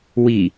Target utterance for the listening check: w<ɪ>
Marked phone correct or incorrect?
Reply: incorrect: i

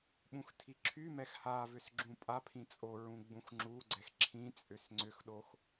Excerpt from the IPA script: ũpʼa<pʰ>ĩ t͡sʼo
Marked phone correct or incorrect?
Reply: correct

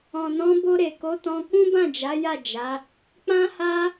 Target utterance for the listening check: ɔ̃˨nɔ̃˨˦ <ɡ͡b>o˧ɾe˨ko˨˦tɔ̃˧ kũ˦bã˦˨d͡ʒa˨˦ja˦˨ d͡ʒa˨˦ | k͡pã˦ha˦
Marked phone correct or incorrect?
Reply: incorrect: b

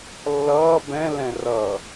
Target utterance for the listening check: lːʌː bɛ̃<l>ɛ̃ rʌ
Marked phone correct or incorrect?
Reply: correct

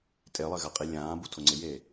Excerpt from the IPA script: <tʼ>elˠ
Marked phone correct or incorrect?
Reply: correct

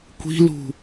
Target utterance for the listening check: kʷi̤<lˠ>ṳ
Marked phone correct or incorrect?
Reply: incorrect: l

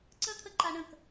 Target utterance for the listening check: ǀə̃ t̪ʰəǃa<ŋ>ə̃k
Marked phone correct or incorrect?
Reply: incorrect: ɳ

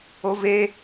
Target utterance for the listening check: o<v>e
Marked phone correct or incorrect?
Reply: correct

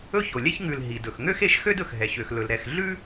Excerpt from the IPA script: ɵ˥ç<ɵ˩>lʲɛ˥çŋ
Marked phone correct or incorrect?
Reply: incorrect: o˩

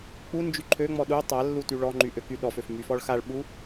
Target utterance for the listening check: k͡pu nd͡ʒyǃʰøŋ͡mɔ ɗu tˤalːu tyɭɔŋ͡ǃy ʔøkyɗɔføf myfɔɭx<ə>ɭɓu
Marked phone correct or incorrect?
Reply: incorrect: a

